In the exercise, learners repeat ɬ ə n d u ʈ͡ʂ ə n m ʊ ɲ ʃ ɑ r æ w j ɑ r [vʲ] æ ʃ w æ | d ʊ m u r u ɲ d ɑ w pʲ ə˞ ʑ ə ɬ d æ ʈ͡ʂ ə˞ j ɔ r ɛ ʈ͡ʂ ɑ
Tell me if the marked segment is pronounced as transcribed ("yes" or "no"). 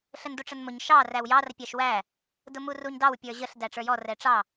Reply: no